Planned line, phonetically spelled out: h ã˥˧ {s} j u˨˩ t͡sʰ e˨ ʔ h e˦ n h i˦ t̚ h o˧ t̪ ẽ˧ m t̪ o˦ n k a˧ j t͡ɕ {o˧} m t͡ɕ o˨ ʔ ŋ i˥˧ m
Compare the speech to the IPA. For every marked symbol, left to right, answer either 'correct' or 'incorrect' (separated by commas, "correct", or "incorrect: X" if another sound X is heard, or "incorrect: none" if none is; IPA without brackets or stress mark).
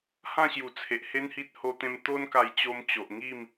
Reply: incorrect: ɕ, correct